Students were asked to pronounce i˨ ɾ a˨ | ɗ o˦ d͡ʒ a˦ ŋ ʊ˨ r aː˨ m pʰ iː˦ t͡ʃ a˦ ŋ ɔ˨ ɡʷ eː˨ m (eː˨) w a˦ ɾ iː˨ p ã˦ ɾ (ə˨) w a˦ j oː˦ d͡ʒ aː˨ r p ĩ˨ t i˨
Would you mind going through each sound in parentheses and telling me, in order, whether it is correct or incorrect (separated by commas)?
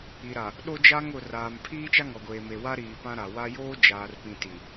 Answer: incorrect, incorrect